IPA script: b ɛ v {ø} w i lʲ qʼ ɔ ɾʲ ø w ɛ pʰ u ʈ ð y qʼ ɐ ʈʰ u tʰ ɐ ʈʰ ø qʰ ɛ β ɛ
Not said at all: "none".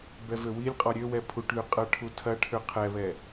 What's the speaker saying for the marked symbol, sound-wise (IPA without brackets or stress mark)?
ø